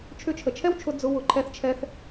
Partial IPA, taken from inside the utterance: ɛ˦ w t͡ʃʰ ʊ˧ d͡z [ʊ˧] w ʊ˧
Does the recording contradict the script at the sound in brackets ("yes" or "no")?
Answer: no